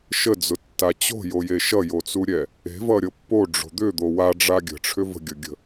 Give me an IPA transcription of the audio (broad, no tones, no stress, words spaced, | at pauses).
ʃəd͡zʊtːa t͡ɕo̤joje ʃʌjot͡suɾʲɛ | e̤vʌɾʲɤ pːoɖ͡ʐo̤ d̪ʏd̪o waɖ͡ʐa ɡʲə̤ʈ͡ʂʰʏ və̤ɡʲʌɡʲə̤